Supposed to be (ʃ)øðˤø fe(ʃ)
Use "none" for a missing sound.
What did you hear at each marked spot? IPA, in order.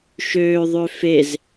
ʃ, z

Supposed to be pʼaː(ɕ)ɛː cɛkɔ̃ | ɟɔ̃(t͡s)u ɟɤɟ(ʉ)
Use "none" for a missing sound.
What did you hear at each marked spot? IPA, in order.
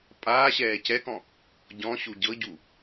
ɕ, ɕ, u

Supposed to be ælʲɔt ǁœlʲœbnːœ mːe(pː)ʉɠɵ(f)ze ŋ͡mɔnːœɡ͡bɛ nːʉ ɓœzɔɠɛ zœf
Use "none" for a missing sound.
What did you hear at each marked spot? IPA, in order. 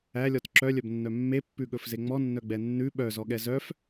pː, f

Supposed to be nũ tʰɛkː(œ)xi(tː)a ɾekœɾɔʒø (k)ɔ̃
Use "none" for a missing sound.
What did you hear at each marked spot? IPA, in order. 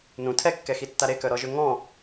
ɛ, tː, ŋ

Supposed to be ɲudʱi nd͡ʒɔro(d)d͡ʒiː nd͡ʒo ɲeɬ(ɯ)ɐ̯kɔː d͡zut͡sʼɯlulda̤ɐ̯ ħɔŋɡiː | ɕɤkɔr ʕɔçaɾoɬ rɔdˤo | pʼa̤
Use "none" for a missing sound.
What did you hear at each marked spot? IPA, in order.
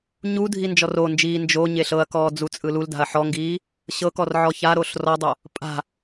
n, ɤ

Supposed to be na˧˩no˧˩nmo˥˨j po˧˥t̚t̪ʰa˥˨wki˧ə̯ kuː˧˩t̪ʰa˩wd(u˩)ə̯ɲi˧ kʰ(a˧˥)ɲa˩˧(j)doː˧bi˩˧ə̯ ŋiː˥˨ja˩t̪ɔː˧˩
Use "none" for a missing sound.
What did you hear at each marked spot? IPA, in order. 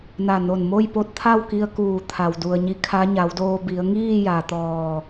u˩, a˧˥, w

